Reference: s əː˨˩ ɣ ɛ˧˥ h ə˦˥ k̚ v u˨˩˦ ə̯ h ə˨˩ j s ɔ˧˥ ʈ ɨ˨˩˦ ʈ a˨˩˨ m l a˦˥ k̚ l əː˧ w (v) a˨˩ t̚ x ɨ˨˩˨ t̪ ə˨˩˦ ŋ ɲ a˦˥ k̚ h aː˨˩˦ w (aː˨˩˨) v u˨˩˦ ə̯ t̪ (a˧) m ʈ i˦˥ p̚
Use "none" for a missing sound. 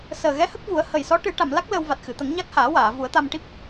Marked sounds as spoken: v, aː˨˩˨, a˧

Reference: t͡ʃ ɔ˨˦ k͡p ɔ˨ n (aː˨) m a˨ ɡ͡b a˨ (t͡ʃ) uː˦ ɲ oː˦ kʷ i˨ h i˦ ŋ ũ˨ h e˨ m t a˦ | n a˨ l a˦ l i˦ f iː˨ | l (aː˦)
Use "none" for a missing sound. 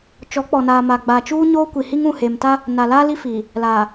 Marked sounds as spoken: aː˨, t͡ʃ, aː˨

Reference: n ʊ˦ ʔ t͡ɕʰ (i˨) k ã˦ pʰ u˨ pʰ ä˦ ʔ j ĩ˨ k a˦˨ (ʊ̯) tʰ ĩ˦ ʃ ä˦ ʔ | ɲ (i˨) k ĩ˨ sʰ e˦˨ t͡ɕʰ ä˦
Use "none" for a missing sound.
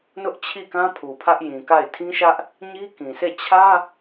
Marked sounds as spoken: i˦˨, ɪ̯, i˦

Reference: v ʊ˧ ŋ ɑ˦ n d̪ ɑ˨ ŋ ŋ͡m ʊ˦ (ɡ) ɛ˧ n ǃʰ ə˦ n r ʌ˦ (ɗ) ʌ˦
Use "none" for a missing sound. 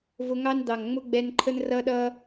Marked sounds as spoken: ɡ͡b, ɗ

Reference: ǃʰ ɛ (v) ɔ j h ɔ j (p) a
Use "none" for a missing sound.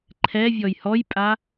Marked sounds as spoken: vʲ, pʼ

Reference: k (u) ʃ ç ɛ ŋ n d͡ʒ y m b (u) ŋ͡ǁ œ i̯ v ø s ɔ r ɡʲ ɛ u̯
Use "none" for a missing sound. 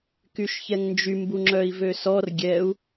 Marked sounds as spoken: y, u

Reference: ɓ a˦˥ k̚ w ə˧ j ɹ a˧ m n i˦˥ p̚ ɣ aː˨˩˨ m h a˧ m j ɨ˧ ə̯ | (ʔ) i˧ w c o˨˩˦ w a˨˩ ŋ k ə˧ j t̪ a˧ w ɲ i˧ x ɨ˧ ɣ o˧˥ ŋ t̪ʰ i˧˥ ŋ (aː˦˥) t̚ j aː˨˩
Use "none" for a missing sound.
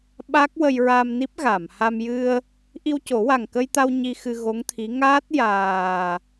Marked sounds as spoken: ʔ, aː˦˥

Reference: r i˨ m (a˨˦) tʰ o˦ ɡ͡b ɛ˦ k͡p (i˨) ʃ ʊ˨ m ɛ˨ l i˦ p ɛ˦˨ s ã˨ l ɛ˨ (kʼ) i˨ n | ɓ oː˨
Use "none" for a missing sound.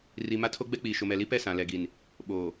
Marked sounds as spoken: a˦, iː˨, ɡ

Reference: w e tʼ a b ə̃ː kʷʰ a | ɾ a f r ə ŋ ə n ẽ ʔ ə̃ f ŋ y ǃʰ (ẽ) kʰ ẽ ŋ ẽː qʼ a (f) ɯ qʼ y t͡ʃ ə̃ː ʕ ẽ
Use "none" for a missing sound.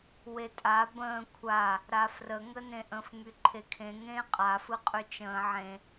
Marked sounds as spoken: e, f

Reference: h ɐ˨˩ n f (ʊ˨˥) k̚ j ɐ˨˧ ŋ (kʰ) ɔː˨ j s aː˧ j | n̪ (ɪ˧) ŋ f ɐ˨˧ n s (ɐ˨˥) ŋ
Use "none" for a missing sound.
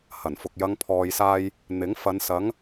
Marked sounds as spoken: ʊ˨, pʰ, ɪ˨˥, ɐ˨˥

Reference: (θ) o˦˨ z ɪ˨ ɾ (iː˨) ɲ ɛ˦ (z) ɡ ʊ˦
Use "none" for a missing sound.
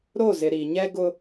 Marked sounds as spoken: ɾ, i˨, none

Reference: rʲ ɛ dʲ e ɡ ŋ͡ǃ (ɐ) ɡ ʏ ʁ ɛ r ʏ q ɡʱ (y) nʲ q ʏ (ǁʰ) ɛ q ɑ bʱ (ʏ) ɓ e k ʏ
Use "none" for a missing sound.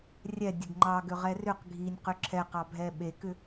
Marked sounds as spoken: ɑ, i, ǁʰ, ɛ

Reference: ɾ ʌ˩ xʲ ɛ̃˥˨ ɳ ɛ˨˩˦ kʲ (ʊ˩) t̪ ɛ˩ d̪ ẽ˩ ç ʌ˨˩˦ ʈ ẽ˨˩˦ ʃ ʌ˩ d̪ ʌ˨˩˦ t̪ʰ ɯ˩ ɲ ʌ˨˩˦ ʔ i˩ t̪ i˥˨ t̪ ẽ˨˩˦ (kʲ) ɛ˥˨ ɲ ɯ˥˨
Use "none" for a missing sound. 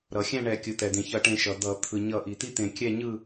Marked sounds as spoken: ɯ˩, kʲ

